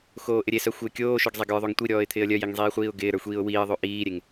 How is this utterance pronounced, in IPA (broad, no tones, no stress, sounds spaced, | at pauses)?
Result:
x oː ʔ ɪ ɾʲ e s œ xʷ ɪː kʲ oː ʃ œ ɡ zˤ e ɡ ə˞ ðˤ o ŋ tʷ i ɾʲ ɔː ɪ̯ t̪ʰ ɪː ə̯ lʲ œ j e ŋ zˤ iː χʷ iː ʊ̯ ɡ ɪː ɾ ə˞ xʷ iː ʊ̯ w iː ə̯ ðˤ o ʔ iː ɾʲ e ŋ